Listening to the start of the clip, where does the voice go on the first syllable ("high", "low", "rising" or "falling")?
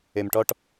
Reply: low